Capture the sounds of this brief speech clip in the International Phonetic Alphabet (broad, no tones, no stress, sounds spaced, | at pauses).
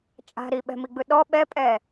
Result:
t͡ʃʼ a̤ ɾ i ɓ ɛ̤ m i ɡ͡b ɯ ɗ ɔ ɓ ɛ pʼ ɛ